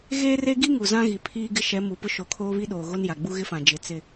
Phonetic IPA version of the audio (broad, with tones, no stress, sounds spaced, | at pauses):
ɣ eː˦ r e˦ ɡ i˦ ŋ u˨ z ã˦ ɣ i˨ pʰ iː˦ ɡ ɪ˦ ʃ ɛ˨˦ m u˨ p ʊ˦ ʃ o˨˦ kʰ oː˦ β i˦ ɗ oː˨ ɣ o˦ n j a˨ ɡ͡b u˦ ɣ ɪ˦ f ã˨ d͡ʒ ɪ˨ t͡s ɪ˦